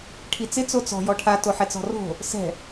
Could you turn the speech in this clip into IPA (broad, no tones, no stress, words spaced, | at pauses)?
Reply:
ʈʰit͡sɪ t͡sot͡sɔ̤ jɔʈʰa toħɛt͡sɔ̤ro̤ | sɛ̤